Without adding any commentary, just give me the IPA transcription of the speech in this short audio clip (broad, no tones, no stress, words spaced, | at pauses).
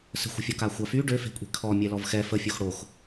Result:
sə̤xʷə̤fʲɔ kaxʷafy ɖøfe̤kʷʼe̤ kʰɔ mʲɛlɔvxɛ fəfʲox ɽox